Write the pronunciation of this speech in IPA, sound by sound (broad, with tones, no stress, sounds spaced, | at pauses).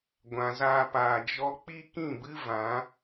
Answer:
ɡʷ ã˨ z aː˧ p aː˨ d͡ʒ ɔ˦ k͡p i˦ k ĩ˦˨ b ɨ˦ v ã˨˦